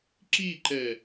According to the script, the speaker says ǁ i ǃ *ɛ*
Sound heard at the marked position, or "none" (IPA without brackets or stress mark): ɛ